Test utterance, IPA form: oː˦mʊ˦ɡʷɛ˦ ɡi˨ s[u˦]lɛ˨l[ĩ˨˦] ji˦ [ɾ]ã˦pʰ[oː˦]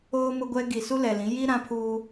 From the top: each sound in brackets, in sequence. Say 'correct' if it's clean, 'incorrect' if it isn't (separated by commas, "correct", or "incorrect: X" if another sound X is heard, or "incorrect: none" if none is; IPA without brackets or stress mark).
correct, correct, correct, incorrect: uː˦